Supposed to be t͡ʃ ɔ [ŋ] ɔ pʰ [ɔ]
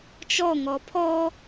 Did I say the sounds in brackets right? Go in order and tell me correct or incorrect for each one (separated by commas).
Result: correct, correct